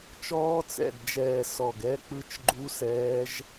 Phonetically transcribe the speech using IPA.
t͡ʃ ɔː˦˥ t͡s ɛ̰˧˩ d d͡ʒ ɛː˧˩ s ɔ˧˩ ɡ ɛ˦˥ k͡p ɯ˦˥ t͡ʃ ɡ͡ǃ u˦˥ s ɛː˦˥ ʒ

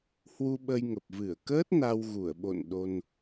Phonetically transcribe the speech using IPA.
h w u˧ ɓ ə˧ j ŋ ə˨˩ p̚ v ɨ˧˩ ə̯ k əː˦˥ t̚ n a˧ w ɣ u˧˩ ə̯ ɓ o̰˧˨ n ɗ o˧ n

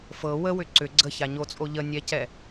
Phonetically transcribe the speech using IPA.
f ɤ w ə w ʏ ǀ ʏ ɡ͡ǀ ə ç a ɲ o t͡sʼ o ʎ ə nʲ ɛ c ɛ

